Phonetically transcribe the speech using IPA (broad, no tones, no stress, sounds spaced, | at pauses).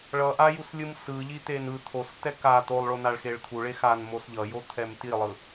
ɭ ʌ ʔ a j u s lʲ ɯ m s ɯ ʎ i t̪ e n ɯ t̪ʰ o s t ɛ k a t̪ o lˠ ɭ o n a ɭ x e ɭ t̪ʰ u ɭ e x a n m o s ʎ ʌ j o t̪ʰ ɛ m t i lˠ ɯ